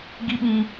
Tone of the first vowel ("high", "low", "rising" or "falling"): high